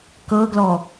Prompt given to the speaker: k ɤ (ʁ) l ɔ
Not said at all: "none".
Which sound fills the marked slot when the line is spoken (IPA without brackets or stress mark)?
ɡ